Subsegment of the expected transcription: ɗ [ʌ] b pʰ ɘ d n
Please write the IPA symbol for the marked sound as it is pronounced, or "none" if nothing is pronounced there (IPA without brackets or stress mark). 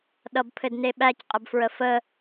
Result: ʌ